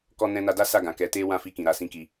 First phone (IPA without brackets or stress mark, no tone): k